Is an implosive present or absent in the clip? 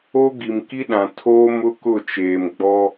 present